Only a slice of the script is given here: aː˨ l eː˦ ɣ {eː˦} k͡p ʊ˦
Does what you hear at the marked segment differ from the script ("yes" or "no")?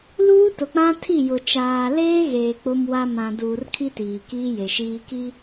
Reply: yes